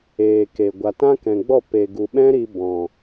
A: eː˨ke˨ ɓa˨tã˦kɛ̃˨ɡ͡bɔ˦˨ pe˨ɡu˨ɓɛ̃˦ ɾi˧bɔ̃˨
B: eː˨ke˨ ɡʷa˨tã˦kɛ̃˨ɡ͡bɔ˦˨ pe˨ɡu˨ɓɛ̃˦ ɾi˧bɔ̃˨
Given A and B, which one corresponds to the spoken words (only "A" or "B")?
B